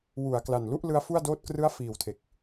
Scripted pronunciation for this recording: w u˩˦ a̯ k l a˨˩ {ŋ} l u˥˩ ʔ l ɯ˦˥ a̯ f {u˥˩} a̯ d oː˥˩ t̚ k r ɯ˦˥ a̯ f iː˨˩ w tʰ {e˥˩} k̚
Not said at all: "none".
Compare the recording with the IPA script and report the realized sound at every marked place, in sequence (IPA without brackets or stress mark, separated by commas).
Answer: n, u˥˩, e˨˩